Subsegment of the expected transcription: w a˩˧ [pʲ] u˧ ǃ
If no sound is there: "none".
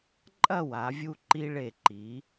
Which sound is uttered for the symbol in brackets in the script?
vʲ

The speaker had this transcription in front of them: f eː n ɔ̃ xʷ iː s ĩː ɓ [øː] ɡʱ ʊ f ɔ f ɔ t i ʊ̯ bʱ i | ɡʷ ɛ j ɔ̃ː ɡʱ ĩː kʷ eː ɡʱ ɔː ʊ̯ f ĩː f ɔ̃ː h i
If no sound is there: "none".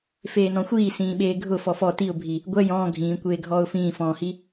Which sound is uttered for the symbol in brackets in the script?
eː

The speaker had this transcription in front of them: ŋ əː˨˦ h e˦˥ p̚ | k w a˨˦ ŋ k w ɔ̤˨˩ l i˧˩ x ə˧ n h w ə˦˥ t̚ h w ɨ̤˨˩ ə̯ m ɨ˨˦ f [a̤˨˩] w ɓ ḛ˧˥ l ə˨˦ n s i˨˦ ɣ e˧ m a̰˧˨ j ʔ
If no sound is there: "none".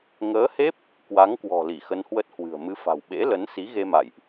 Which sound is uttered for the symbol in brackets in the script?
a̤˨˩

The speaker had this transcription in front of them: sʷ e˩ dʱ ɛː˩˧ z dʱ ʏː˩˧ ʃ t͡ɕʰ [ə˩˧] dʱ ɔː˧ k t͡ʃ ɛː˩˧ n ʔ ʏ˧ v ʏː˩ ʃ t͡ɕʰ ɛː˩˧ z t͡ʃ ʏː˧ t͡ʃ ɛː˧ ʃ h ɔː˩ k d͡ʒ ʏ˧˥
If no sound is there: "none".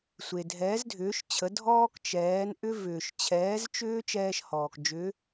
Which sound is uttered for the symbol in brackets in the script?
ə˩˧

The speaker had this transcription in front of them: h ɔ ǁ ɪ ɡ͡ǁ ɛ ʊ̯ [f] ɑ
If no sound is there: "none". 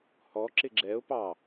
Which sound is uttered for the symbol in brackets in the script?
p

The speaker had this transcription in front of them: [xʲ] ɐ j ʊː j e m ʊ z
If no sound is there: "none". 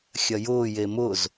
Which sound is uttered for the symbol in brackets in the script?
xʲ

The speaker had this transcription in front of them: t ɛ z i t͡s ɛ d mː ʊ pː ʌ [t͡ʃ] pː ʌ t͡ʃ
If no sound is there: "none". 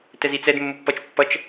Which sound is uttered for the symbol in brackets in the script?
t͡ʃ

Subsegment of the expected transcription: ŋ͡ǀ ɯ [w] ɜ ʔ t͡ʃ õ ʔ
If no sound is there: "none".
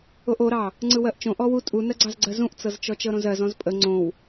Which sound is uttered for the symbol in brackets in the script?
w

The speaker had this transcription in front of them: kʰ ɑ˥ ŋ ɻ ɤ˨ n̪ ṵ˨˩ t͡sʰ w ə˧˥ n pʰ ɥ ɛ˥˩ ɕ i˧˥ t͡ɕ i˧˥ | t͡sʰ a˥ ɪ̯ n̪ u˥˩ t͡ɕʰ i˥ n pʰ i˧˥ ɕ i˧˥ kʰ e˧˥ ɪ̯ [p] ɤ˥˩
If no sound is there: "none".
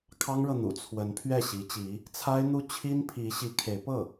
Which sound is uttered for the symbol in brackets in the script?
p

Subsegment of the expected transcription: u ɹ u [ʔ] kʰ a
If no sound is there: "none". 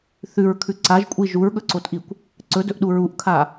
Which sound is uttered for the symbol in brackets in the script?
ʔ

